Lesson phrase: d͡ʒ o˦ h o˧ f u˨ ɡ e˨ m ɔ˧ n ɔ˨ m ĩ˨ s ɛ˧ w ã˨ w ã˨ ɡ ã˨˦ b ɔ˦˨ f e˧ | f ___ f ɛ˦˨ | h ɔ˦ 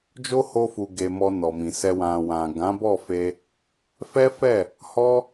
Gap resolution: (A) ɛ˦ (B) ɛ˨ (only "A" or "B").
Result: A